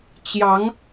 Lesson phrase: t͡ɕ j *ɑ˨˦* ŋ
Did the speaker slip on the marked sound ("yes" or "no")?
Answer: no